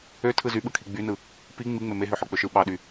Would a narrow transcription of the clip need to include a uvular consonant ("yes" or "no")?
no